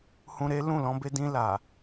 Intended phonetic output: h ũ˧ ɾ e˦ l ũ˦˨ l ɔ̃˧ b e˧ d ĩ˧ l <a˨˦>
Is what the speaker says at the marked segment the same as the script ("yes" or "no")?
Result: no